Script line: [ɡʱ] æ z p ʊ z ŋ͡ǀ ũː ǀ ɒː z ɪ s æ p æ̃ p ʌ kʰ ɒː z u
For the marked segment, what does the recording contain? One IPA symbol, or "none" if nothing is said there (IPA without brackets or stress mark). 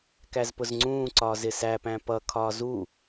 k